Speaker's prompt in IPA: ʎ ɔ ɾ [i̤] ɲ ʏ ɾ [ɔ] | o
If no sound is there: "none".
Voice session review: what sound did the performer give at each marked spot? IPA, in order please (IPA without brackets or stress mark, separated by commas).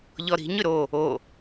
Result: i̤, o